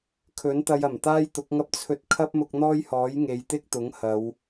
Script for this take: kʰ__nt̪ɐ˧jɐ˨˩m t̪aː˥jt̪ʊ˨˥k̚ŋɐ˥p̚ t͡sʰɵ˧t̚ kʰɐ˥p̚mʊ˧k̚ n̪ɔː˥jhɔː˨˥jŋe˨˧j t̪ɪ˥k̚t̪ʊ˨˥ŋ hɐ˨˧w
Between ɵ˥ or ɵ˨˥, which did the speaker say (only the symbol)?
ɵ˨˥